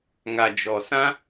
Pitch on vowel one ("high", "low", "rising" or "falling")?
low